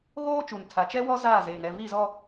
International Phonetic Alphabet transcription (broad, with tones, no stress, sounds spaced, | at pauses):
ɣ oː˦ t͡ʃ u˨ n tʰ a˨ t͡ʃ ɛ˦ w ɔ˦ z aː˦˨ z eː˨ ŋ ɛ˦˨ v i˦˨ z ɔ˦